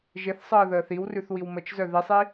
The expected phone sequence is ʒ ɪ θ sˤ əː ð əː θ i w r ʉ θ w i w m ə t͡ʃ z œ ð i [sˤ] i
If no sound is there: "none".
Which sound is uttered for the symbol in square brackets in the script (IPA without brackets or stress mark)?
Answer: sˤ